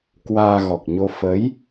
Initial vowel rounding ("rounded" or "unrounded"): unrounded